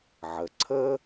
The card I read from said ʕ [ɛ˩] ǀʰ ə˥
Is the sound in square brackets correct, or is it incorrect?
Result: incorrect